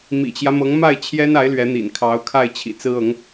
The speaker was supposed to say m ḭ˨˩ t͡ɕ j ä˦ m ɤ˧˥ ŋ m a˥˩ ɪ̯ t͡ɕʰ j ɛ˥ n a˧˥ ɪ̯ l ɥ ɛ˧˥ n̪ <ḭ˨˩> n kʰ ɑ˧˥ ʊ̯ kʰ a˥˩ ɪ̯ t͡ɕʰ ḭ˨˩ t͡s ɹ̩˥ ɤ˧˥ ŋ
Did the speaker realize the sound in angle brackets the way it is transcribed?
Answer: yes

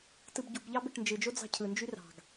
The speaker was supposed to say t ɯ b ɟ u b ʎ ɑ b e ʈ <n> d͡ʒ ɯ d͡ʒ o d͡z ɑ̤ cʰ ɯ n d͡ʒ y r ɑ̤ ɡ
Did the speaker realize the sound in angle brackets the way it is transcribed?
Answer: yes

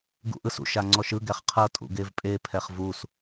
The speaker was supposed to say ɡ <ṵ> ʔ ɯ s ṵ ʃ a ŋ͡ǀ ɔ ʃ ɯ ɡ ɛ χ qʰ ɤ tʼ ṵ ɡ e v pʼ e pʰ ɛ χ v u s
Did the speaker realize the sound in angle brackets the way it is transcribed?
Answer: yes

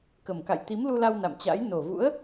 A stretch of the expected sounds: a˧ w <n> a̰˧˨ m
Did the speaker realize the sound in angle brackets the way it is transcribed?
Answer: yes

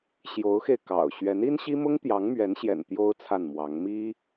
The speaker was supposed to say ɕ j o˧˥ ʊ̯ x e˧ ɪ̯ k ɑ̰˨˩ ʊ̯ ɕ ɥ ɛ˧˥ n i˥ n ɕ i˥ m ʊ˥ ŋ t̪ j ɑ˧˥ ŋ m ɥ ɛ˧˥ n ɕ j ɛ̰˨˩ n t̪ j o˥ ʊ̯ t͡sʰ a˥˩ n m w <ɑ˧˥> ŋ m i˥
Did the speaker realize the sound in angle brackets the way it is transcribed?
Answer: yes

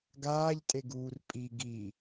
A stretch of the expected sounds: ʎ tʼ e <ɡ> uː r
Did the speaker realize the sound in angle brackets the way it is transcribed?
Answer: yes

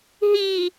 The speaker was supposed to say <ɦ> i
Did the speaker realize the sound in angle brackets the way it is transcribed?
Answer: yes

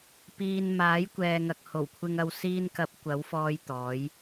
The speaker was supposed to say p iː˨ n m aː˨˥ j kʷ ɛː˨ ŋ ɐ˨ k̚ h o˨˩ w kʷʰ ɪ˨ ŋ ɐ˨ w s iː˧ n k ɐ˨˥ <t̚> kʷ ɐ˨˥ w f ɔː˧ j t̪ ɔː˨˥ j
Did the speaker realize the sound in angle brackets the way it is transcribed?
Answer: no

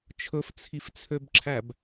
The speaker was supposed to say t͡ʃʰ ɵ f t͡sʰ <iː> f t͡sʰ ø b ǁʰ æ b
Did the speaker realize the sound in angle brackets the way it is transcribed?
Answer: no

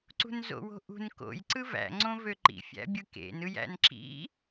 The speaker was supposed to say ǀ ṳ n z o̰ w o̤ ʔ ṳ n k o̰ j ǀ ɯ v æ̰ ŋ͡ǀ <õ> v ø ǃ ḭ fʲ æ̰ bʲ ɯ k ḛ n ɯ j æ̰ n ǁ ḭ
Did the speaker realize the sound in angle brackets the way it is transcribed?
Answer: yes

